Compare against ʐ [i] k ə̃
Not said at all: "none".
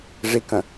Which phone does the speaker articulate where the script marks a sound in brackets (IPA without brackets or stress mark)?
i